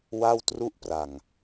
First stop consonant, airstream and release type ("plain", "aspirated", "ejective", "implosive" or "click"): plain